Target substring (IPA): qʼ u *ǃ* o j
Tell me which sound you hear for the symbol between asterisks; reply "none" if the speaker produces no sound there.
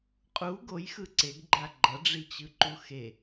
ɡ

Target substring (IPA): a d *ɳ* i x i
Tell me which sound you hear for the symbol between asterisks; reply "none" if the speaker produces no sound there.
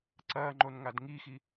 ŋ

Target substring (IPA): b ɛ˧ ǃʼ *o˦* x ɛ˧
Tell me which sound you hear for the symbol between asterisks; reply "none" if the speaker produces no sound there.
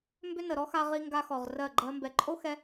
o˦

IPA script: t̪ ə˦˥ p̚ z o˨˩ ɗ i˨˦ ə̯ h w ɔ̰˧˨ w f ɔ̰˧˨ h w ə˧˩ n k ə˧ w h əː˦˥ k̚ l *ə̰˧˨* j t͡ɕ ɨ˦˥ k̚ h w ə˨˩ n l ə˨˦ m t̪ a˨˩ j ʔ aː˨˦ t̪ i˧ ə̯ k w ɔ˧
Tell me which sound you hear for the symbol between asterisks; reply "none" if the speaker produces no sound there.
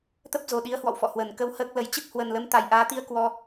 ə˨˦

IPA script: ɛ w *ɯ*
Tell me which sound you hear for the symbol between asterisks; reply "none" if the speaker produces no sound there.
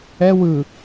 ɯ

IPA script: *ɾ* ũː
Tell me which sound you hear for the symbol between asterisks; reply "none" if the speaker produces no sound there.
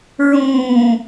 ɹ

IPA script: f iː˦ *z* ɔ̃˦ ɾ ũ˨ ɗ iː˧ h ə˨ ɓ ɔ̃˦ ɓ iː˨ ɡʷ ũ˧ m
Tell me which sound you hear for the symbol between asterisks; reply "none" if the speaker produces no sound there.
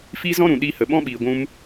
z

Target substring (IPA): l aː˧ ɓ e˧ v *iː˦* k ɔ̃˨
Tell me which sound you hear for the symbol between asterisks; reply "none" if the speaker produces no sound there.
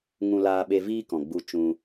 iː˦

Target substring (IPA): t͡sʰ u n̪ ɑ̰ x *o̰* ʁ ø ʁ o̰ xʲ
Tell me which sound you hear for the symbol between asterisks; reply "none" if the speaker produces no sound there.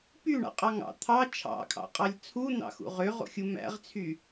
ṵ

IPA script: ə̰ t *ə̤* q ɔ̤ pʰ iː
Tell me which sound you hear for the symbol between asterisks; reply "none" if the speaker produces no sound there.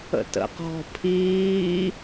ə̰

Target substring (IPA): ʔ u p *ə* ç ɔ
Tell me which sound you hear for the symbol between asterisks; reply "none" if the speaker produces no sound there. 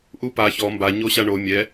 a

